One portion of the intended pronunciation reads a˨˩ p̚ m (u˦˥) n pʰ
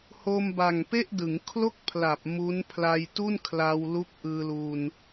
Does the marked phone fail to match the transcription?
no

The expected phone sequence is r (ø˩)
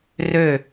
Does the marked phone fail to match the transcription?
yes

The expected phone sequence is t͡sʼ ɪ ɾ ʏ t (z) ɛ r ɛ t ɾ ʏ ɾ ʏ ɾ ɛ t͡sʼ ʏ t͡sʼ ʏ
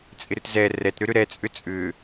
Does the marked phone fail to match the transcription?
no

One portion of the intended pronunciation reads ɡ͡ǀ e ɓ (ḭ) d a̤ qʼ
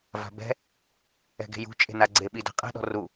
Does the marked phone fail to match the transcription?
yes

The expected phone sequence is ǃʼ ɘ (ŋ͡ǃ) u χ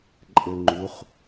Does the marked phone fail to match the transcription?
no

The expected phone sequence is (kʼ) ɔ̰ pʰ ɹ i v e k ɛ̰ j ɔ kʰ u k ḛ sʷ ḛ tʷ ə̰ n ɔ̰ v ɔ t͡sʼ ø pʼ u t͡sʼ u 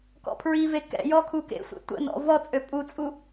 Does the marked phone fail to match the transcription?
yes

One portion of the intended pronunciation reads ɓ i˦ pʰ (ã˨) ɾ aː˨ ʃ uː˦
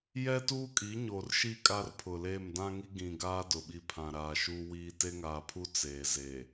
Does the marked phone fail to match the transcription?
no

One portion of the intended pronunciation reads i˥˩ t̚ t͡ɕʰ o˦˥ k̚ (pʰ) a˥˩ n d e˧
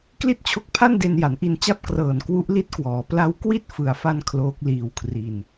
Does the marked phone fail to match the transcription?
no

